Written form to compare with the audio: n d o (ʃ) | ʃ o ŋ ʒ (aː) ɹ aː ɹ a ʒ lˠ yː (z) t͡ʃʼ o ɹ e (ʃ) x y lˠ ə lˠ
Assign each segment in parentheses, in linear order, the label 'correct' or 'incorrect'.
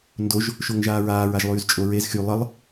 incorrect, correct, correct, incorrect

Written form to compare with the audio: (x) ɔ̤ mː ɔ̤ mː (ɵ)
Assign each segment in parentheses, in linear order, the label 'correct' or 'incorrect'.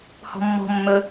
incorrect, correct

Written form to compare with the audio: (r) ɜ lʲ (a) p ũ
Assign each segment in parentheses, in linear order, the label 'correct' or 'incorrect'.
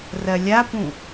correct, correct

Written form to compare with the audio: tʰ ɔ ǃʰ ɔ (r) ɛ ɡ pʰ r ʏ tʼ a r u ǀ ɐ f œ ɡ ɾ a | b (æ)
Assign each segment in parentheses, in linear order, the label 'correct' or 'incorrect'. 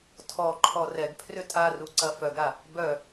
correct, incorrect

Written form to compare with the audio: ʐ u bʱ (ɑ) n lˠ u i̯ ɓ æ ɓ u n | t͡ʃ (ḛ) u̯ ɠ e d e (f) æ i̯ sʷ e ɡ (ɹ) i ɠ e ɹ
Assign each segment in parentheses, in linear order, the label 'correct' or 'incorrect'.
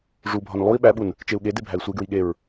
incorrect, incorrect, incorrect, correct

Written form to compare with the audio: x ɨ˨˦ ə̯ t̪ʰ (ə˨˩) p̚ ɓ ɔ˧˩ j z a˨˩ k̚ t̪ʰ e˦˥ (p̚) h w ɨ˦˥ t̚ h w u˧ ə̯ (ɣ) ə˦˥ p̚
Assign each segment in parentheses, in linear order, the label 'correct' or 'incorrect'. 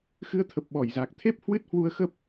correct, correct, incorrect

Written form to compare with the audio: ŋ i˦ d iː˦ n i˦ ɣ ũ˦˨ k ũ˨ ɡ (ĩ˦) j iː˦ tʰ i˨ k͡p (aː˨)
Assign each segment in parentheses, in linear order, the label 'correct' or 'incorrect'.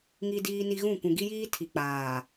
incorrect, correct

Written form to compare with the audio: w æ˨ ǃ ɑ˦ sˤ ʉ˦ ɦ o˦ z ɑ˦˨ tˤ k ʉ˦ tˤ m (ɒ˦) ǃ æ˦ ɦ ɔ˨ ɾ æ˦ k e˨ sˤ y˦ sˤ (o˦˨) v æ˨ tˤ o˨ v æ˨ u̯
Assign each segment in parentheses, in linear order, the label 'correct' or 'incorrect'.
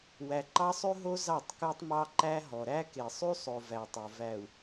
incorrect, incorrect

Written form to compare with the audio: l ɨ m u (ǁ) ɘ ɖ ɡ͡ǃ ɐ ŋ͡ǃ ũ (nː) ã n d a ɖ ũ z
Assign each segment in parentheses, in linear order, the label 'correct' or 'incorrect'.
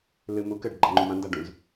incorrect, incorrect

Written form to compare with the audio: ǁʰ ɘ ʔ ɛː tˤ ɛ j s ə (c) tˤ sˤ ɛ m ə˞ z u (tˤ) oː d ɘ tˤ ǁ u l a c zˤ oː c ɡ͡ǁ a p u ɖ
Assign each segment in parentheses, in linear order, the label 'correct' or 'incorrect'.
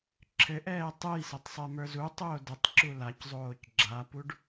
incorrect, correct

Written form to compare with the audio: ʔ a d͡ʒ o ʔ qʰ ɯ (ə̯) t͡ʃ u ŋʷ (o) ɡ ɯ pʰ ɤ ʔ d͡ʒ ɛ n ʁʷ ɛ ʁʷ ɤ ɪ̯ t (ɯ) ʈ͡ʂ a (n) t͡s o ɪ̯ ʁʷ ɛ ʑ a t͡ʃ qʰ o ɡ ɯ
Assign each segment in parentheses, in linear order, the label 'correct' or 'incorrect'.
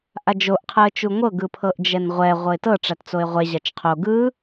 correct, incorrect, incorrect, incorrect

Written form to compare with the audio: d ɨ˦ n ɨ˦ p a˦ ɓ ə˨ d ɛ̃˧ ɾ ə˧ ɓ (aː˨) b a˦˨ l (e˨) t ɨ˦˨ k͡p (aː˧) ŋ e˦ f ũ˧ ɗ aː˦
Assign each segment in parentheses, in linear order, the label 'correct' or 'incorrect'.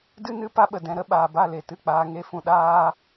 correct, correct, correct

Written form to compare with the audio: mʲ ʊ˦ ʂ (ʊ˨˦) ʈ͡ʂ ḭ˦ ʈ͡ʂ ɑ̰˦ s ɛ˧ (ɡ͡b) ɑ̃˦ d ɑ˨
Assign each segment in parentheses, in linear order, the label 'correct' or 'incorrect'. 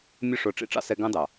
incorrect, incorrect

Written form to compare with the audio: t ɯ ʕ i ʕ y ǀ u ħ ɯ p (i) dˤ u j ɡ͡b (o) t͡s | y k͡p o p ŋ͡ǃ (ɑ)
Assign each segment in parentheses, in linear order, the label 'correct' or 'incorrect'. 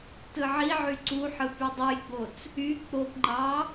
incorrect, correct, correct

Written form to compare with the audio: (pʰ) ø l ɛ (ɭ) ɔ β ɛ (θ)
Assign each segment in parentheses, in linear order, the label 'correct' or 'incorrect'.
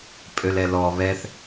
incorrect, incorrect, correct

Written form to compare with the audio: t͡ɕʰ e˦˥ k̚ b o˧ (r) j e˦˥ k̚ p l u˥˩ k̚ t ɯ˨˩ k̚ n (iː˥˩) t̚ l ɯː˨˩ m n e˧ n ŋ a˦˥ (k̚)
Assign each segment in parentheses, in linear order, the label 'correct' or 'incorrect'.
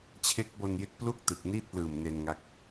incorrect, correct, correct

